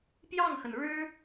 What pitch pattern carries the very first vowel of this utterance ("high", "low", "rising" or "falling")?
falling